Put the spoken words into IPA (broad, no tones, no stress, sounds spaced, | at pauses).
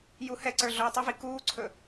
j u h ɛ ǀ ə˞ ɮ o j tˤ ɵ v i k uː ǀʰ ɵ